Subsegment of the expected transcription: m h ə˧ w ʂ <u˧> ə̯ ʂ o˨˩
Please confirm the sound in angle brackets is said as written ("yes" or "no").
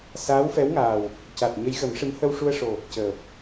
yes